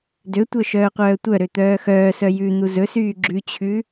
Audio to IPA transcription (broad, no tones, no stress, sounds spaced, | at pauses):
d ø tʷ œ ʃ œː qʷ œː tʷ œ ɾ ø t̪ œː x œː s œ j ʉ n̪ u z ɵ s yː ɡ͡ǁ ʉ t͡ɕʰ ʉ